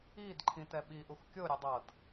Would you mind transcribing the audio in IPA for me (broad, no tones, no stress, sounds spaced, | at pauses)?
i d ǃʰ ĩ t ɛ ɓ i ʔ u x kʲ o ɾʲ ɛ dˤ ɤ d